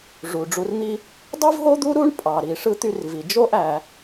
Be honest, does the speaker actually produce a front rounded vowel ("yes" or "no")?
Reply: yes